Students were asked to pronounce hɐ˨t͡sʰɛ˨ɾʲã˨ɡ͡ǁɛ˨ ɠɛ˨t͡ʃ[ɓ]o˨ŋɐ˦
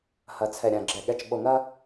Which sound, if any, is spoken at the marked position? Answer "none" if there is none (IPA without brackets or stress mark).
ɓ